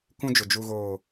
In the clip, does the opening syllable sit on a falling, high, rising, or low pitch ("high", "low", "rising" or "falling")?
high